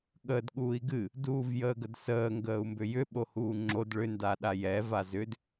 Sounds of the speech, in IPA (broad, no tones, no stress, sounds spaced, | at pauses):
ɠ əː d ɠ uː i̯ ɡ ɨ | d uː v j əː ɡ ə d s əː ŋ ɡ əː u̯ m b ʏ j ʏ ɓ o h uː ŋ͡ǁ o d ɭ ʏ n d a ɗ a j ɛ v a z ʏ d